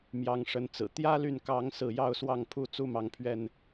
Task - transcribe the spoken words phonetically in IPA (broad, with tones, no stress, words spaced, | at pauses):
mjɑ˨˦ŋʂə˨˦nt͡sɹ̩˨˩ t̪jä˦ly˨nkɑ˨˦ŋ sɹ̩˥˨ jɑ˥˨ʊ̯swɑ˥˨ŋ pʰu˥˨t͡su˦mɑ˨˦ŋpʰɥɛ˥˨n